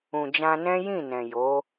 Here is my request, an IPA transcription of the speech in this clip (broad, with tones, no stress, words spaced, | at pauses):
ũ˨d͡ʒã˧nɛ̃˦ jĩ˦˨nɛ̃˨jo˨˦